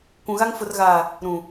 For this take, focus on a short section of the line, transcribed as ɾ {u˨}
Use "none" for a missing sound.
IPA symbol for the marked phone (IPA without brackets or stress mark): ũ˨